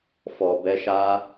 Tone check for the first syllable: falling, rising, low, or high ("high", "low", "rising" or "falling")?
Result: low